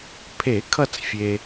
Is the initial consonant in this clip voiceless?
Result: yes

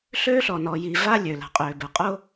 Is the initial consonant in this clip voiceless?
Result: yes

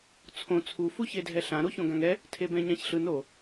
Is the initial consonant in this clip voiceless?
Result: yes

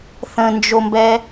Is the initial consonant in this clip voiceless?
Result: yes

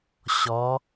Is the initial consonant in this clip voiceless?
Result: yes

